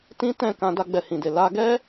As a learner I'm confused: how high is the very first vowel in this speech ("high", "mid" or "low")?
high